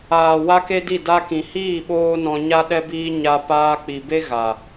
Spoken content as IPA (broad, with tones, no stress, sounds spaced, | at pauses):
aː˨ w a˦ k e˦ d i˦˨ d a˧ k ĩ˨ h iː˦˨ ɓ oː˦ n ɔ̃˧ ɲ a˦ ɗ ɛ˦ b iː˦ ɲ a˧ p aː˧ k͡p i˨ b e˦ ɣ a˨